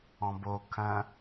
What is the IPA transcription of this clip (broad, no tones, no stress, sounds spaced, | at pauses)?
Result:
ɔ̃ b o kʰ ɐ̃